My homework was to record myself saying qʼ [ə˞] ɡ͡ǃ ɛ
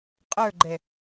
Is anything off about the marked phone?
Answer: no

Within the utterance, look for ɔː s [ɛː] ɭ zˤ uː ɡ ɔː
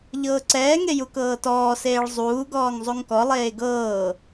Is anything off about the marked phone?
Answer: yes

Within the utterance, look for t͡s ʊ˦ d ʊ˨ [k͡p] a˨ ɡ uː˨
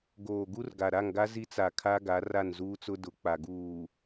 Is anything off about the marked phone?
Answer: no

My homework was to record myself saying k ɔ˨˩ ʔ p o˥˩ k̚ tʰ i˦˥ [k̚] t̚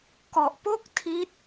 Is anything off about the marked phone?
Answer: yes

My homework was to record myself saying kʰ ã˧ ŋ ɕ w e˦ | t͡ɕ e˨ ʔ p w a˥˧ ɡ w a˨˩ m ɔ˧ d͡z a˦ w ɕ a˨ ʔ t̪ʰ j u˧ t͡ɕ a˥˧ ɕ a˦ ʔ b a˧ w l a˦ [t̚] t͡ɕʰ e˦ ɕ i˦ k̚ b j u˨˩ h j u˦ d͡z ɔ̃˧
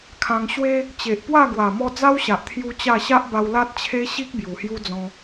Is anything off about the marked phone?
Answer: no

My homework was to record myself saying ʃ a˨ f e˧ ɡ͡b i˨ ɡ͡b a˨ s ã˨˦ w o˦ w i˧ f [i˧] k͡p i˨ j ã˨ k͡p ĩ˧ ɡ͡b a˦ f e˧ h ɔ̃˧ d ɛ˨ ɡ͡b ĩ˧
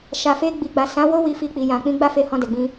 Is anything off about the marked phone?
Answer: no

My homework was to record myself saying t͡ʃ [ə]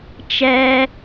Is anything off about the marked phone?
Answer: yes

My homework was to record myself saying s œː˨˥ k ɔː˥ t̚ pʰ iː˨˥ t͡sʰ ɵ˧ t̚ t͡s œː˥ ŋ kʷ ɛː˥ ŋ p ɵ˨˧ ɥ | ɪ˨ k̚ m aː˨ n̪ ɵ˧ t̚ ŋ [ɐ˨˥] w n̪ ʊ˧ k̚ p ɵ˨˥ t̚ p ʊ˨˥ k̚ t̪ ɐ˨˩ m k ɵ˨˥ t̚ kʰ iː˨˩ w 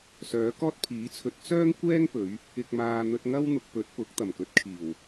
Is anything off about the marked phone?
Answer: yes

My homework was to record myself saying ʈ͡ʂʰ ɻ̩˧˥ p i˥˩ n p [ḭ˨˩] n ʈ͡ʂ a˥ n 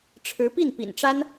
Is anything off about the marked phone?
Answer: no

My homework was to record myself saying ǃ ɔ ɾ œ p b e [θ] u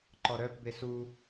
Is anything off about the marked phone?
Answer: yes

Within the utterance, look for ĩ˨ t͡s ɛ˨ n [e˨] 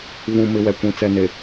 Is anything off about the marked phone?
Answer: no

